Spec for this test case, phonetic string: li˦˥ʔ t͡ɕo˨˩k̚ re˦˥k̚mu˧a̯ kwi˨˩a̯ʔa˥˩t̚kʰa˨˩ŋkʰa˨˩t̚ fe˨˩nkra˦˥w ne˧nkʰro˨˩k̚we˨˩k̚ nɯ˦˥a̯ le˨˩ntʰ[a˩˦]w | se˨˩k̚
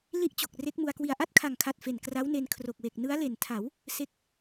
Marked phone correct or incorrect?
correct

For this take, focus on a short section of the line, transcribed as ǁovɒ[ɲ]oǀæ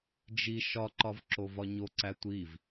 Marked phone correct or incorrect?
correct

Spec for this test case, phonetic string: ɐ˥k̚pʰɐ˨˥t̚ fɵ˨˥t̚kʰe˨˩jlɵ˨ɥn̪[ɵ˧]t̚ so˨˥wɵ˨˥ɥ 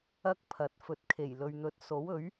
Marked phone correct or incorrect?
incorrect: ɵ˨˥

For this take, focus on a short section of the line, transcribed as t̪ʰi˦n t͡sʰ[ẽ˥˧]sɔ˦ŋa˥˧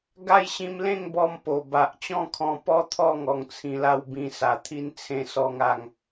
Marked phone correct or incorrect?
correct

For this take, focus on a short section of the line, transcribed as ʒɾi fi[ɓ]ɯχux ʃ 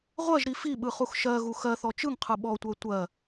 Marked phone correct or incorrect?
correct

